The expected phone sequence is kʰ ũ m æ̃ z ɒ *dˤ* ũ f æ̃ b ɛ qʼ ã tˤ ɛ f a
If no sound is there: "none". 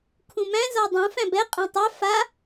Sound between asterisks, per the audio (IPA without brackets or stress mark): dˤ